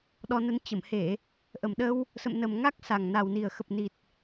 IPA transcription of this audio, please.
ɗ ɔ˧ n ə˧ n t͡ɕ ə˧˩ m h e˧˩˨ | ʔ ə˨˩ m ɗ ə˧ w | s ə̰˧˨ m n ə˨˩ m ŋ a˦˥ k̚ s a˨˩ ŋ n a˨˩ w n i˨˩ ə̯ x ə˨˩ p̚ n i˨˩ t̚

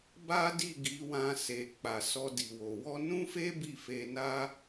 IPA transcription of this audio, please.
b a˦ d i˦˨ ɡ i˨˦ w ã˧ s e˨ k͡p a˨ s ɔ˧ d i˨ w o˨ w ɔ˧ n ũ˦ f e˦ b i˦˨ f e˧ n a˦

